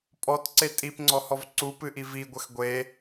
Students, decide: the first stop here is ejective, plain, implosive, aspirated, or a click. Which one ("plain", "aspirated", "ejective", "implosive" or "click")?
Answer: ejective